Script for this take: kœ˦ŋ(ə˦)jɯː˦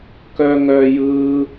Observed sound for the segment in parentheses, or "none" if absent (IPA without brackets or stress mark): œ˦